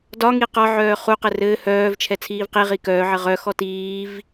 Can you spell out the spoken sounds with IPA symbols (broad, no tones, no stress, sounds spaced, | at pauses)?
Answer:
d ɒ ŋ i q ɒ ʕ œː χ u q ɘ r ɘː h œː v t͡ʃʰ ɛ t͡sʰ iː v q i ʁ i k œː ʕ ɘ ʁ œ x ɔ t iː v